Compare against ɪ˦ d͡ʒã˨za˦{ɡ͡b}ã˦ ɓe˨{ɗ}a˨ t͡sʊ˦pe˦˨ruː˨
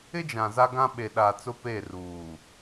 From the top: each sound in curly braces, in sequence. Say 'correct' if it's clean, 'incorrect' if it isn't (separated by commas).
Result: incorrect, correct